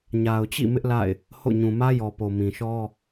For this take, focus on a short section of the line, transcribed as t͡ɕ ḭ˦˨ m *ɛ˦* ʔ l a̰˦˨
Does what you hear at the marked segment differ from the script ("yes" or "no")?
yes